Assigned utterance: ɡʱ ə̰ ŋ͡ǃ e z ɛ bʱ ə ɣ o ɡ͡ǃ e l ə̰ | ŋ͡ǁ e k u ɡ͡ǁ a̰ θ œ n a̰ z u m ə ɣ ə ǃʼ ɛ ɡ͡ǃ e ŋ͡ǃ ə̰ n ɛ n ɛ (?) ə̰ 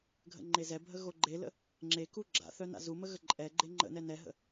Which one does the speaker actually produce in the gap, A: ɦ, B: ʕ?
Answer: A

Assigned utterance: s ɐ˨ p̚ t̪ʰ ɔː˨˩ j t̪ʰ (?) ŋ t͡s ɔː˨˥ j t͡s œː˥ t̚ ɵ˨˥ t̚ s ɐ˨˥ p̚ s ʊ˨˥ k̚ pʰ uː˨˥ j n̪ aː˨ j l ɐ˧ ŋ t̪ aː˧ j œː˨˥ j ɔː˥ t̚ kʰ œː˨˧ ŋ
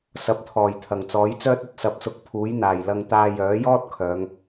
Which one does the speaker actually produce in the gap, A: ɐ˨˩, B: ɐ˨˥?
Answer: A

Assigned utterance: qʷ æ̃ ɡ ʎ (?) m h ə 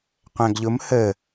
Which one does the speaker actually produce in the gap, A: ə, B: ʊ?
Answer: B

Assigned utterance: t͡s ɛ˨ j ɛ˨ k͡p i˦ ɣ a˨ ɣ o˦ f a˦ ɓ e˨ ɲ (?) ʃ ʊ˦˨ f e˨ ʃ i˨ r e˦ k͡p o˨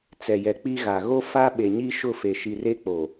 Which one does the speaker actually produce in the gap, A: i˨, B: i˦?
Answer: B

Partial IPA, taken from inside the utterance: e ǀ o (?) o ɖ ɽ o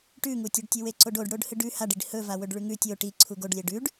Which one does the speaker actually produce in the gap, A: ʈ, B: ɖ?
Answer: B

